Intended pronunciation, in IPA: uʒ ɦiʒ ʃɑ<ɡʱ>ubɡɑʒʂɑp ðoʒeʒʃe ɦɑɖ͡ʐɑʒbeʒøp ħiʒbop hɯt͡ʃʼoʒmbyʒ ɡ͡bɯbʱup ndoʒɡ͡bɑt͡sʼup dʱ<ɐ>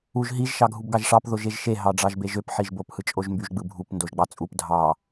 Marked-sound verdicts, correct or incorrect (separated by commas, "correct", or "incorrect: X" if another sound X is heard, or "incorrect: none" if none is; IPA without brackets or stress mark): correct, incorrect: ɑ